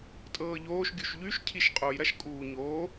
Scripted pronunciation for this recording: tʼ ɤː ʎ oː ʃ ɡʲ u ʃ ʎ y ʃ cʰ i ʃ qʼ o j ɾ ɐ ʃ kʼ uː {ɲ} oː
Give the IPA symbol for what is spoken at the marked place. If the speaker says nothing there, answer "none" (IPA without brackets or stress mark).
ɲ